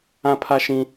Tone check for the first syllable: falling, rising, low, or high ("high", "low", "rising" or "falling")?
high